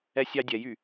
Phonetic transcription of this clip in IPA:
ɛ sʲ ɑ dʲ ɛ j y

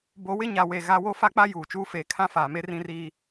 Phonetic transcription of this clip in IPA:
b o˨˦ w ɪ˦ ɲ a˨ w e˨ ɣ a˦ w o˦ f a˦ k͡p a˦ j uː˨ t͡ʃ uː˦ f eː˨ kʰ ã˦ f aː˨ m e˦ r ĩ˦ r iː˦

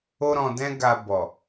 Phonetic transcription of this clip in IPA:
o˦ ɾ ɔ̃˧ d ɛ̃˦ ɡ a˧ b ɔ˨

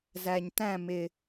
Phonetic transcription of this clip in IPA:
z æ˨ ɲ t æ̃˦˨ m ɪ˨

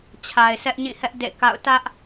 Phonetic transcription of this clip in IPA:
t͡ɕʰ a˨ ɪ̯ sʰ ɛ˦ ʔ ɲ ĩ˦˨ h ɛ˦ ʔ d ḛ˦˨ k a̰˦˨ ʊ̯ t ä˦ ʔ

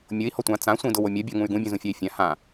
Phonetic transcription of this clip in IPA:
mʲ ʊ i̯ h ɔ tʷ ã t͡s ã sʷ ĩ d ʊ w o mʲ ɐ bʲ ɔ ŋ ũ y̯ ɡ ũ bʲ ũ z ũ fʲ a i̯ fʲ ã h ã

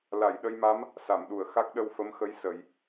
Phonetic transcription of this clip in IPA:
l a˨˩˨ j ɗ ə˧ j m a˧˥ m | s a˨˩˨ m ɗ u˨˩˨ ə̯ x a˦˥ k̚ ɗ ə˧ w f ə˧˥ m x ə˧˥ j s ə˨˩˦ j

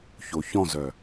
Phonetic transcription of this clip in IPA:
ç o ç ɔ̃ z œ

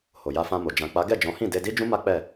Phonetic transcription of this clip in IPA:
h o˨ j a˧ f ã˧ m o˨ d͡ʒ ã˨ k͡p a˨˦ ɡ ɛ˦˨ d͡ʒ ɔ̃˨˦ h ĩ˦˨ d e˧ d i˦ d͡ʒ ũ˦ m a˦ k͡p ɛ˦˨

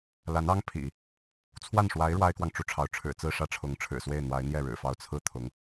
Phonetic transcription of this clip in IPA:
l a˧˥ n ɑ˥ ŋ pʰ ḭ˨˩˦ | t͡sʰ w a˥˩ n ʂ w a˧˥ ɪ̯ ɻ w a˥ ɪ̯ k w ɑ˨ ŋ ʈ͡ʂ u˥˩ ʈ͡ʂʰ ɑ˧˥ ʊ̯ ʈ͡ʂʰ ɻ̩˨˩ t͡s ɹ̩˥˧ ʂ ä˥˩ ʈ͡ʂʰ ʊ˧˥ ŋ ʈ͡ʂʰ ɻ̩˨˩ s w e˥˩ ɪ̯ n̪ w a˧˥ ɪ̯ n̪ j ɛ˥˩ ɻ ɻ̩˨˩ f ɑ˥ ʊ̯ t͡sʰ ɹ̩˥ t̪ʰ ʊ˧˥ ŋ

